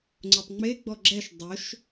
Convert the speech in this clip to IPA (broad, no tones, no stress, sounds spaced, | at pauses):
ŋ͡ǀ o tˤ ŋ͡m e ɡ͡b ɔ ɡ͡ǁ ɛ ʃ dˤ ʊ ʃ